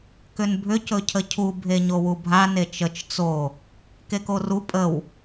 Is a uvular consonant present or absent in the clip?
absent